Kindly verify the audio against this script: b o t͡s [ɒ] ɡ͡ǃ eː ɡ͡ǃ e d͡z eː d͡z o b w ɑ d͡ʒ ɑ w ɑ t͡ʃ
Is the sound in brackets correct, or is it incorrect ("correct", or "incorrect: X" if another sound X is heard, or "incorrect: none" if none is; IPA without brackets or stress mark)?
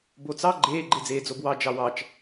incorrect: ɑ